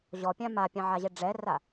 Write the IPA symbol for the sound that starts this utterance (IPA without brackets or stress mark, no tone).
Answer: ʑ